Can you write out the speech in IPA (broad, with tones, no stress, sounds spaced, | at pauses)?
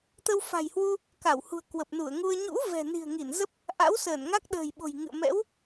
t̪ ə˧ w f a̤˨˩ j h w u˧ | k a˧˩ w h ṳ˨˩ ə̯ k w ə˨˩ p̚ n u˧˩ ə̯ ŋ u˧ ə̯ ɲ ṵ˧˥ v ɛ̤˨˩ n i̤˨˩ ə̯ ŋ i˧˩ n z ə˦˥ p̚ | ʔ a̰˧˥ w s əː˧˩ n ŋ a˦˥ k̚ ɗ ə̤ː˨˩ j ɓ o̤˨˩ j ŋ ɨ̰˧˨ ə̯ m ɛ̰˧˥ w